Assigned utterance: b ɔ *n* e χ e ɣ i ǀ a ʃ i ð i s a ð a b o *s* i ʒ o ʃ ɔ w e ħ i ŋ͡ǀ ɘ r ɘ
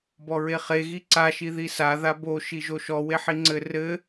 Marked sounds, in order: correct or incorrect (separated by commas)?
incorrect, incorrect